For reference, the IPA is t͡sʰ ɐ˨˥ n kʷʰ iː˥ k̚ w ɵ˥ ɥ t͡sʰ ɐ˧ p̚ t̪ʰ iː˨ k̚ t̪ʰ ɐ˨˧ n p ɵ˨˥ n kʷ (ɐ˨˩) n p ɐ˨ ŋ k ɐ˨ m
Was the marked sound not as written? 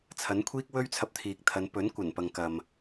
no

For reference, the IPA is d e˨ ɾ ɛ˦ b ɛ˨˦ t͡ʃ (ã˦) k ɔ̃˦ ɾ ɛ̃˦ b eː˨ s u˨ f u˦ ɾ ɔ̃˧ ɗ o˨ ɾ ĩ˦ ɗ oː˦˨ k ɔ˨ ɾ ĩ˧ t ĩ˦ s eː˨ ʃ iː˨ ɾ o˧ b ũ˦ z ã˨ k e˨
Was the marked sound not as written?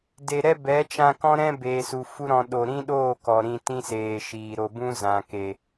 yes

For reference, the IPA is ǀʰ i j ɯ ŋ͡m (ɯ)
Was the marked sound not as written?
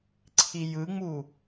yes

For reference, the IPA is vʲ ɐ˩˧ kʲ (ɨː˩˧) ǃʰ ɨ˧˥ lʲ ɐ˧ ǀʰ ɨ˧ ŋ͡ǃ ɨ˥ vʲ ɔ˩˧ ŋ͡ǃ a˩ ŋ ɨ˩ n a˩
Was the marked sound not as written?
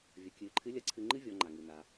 no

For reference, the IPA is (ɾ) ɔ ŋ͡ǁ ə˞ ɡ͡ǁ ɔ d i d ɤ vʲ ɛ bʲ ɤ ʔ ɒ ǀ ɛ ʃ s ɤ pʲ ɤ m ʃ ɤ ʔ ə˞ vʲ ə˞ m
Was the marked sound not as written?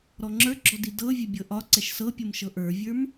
no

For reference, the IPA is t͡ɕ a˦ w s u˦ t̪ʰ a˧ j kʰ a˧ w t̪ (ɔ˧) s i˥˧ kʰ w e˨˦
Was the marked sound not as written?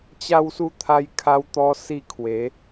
no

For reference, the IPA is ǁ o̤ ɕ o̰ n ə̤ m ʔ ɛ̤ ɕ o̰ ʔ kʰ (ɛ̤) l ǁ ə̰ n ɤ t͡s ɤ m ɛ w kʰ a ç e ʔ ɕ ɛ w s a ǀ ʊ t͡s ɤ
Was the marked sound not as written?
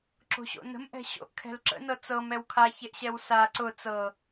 no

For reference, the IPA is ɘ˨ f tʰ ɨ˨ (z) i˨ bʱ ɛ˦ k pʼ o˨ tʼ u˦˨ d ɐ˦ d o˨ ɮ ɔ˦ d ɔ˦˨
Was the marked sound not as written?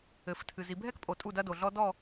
no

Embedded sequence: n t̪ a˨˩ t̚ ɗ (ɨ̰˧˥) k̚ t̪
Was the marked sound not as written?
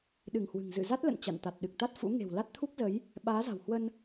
yes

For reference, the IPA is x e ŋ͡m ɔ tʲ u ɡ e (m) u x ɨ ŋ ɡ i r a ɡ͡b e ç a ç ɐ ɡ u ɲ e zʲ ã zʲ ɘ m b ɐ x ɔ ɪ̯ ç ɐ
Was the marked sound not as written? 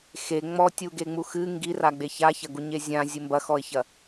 yes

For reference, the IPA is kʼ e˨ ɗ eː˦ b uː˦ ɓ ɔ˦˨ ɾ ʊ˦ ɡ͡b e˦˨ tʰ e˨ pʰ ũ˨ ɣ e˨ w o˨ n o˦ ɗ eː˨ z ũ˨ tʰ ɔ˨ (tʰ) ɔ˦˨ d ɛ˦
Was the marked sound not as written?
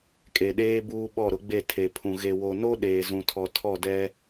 no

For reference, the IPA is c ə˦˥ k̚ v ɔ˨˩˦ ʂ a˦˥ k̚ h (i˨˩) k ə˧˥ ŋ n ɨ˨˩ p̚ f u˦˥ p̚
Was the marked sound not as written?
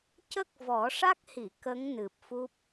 yes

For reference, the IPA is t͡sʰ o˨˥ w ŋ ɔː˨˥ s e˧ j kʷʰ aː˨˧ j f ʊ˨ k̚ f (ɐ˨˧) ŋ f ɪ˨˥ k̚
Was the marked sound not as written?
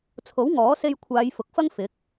yes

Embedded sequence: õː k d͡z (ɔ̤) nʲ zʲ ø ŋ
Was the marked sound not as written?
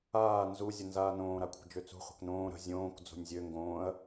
yes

